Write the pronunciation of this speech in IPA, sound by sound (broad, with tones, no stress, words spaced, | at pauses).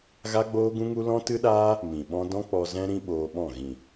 ɣa˦ɡ͡boː˦ɡũ˦ŋu˦ lɔ̃˦tɨ˦ɗaː˦ | mĩ˨ɓɔ̃˦ dɔ̃˦ k͡pɔ˧zɛ̃˦ ɾĩ˦ɓoː˧ɓɔ̃˦˨ ɣĩ˨